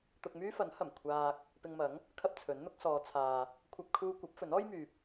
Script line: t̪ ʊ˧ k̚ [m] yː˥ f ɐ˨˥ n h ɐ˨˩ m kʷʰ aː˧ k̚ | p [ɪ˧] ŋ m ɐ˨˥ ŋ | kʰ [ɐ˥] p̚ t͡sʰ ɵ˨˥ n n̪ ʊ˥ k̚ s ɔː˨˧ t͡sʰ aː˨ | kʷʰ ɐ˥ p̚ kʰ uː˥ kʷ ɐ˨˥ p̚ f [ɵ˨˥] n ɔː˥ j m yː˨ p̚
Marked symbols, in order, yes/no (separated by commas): yes, yes, yes, yes